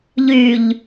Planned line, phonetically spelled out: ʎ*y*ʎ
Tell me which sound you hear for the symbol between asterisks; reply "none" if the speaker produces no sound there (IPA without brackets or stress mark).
y